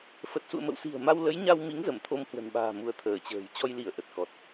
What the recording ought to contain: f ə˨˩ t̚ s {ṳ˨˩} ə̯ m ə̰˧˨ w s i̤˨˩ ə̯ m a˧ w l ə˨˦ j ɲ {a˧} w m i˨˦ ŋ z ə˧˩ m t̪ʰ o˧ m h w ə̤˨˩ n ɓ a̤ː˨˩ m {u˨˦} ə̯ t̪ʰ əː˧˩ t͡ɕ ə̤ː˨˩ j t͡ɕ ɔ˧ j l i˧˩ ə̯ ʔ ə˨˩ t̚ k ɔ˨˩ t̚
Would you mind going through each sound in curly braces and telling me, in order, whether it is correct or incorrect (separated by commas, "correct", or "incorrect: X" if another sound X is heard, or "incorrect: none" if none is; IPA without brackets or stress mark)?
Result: incorrect: ṵ˧˨, correct, correct